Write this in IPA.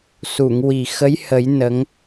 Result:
s u˨˩˨ ŋ w i˨˩ x ə˧˥ j h ə˨˩˦ j n ə˧˥ ŋ

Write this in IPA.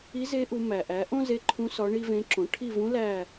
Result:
i˧˥ z e˧˥ ʔ u˩˧ m æ˩ ʔ æ˩˥ ʔ õ˥ z e˧˥ ǃʰ ũ˧˥ s ɒ˧˥ ɳ i˥ v ẽ˧˥ ǁ õ˩˥ ʈʰ i˦˨ v ũ˧˥ l æ˦˨

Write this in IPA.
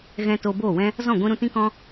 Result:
ɣ ɛ̃˧ t oː˧ b oː˦˨ w ɛ̃˦ | z ɔ̃˦˨ ɡʷ ĩ˧ ɾ ũ˧ t ĩ˦ k ɔ̃˦

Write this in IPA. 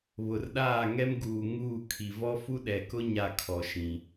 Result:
β ʊ˨ r ɗ aː˦˨ ŋ ɛ˦ m ɡ uː˨ ŋ uː˦˨ kʰ i˨ v ɔ˦ f u˦ ɗ ɛ˨ k ʊ˦ ɲ a˦˨ kʰ ɔ˨ ʃ ĩ˨

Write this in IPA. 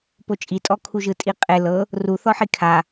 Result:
p o t͡ʃʼ i tʼ ɔ kʰ u ʒ ɯ tʼ i qʼ e l ɤ | r u θ ɔ ħ i kʰ a

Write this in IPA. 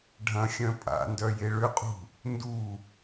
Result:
ɖʱ ɐ̃ xʲ œ̃ pʼ a̰ n d œ j e ɭ ʏ qʼ ṳ | n d u

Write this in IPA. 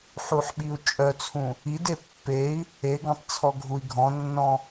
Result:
ħ u ħ ɓ i u̯ t͡ʃʼ œ t͡sʰ ũ | i d e pː e i̯ | e ɡ ɔ̃ tˤ t͡sʰ ɔ ɡʱ u i̯ ɡʱ ɔ̃ nː ɔ̃

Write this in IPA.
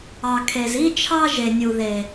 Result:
ɑ˨ kʰ e˨ z i˦ t͡ʃʰ ɑ˦ ʒ e˨ nʲ u˨ ð e˨

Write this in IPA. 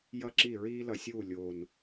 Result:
j ʌ˥ ǁ i˥˨ ɹ iː˥ l ʌ˧˩˧ sʲ uː˥˨ lʲ oː˨˩ n

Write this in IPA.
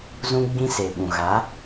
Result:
z ũ˦ ɡ͡b ĩ˦ s e˨ ɓ ũ˨ ɣ a˨˦

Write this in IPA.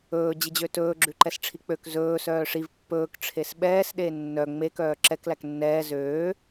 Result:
ɵː d͡ʑ i d͡ʑ ø t ɵː ɡ͡ǁ ʉ ǃ ɛ s ʈ͡ʂʰ i k͡p ø k z ɵː s œː ʂ i v pː ɵː k ʈ͡ʂʰ e s ɓ ɛː s ɗ e nː œ ŋ͡m e k œː ǁ ɛ k l æ k nː ɛː z øː

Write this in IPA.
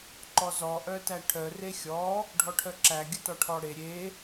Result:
ǃ ɔ z ɔ ʔ œ t æ ʈʰ œ r e xʲ ɔ | ɖʱ ɔ ʈʰ œ ǁ æ ɡʲ ə t ɔ ʈʰ ɔ ɽ e ɾʲ e

